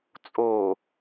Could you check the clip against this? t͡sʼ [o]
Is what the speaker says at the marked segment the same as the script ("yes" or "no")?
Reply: yes